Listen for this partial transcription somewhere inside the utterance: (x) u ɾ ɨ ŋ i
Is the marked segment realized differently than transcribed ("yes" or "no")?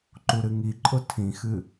yes